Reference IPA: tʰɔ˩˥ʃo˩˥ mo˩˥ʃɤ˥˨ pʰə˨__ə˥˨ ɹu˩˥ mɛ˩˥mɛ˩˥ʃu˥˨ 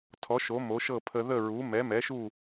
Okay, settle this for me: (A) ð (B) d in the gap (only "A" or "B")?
A